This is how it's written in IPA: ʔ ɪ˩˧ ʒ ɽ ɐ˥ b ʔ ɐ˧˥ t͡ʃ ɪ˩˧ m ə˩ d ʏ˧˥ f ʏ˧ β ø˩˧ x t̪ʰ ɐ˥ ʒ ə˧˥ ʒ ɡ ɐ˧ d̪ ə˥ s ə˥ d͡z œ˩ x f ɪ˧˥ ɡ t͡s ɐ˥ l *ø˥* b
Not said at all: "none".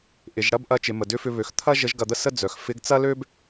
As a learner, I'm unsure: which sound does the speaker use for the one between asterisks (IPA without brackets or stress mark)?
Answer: ø˥